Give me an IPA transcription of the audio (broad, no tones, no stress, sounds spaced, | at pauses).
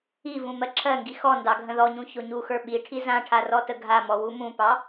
i v ũ m ɜ ǁʰ ɜ ŋ ɡ i x ɔ n d ɑ ɡʱ ə̃ ð ɔ ɲ ũ ç o ɲ u x ə˞ ɓ i ʈʰ i z ã ʈʰ a r ɔ t ə ɡʱ a m ɔ w u m ũ p ɑ